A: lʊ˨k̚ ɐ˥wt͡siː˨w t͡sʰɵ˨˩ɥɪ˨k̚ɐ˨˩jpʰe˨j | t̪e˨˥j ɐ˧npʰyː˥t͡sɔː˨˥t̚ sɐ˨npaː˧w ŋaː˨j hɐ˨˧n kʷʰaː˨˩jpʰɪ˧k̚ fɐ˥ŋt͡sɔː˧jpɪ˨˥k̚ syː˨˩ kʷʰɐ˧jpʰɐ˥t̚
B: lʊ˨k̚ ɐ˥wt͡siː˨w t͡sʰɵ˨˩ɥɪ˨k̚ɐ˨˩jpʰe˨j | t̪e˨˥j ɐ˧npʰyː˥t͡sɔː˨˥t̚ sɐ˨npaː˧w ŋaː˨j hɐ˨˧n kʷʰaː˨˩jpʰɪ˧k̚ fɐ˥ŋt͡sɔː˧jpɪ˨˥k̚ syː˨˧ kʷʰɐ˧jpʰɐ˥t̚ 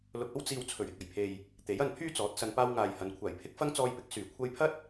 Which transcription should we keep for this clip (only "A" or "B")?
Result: A